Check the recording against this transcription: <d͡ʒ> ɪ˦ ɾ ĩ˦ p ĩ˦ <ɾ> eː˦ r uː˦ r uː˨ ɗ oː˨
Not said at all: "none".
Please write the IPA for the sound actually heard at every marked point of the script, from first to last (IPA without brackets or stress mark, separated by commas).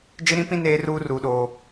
d͡ʒ, n